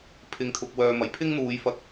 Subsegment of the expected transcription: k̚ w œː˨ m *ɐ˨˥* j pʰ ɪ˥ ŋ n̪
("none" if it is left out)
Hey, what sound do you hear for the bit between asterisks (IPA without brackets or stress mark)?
ɐ˨˩